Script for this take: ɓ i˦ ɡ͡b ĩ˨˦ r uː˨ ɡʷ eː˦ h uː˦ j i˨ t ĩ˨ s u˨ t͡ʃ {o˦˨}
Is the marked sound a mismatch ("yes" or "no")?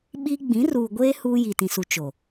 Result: yes